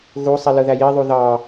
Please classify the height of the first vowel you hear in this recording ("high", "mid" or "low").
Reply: high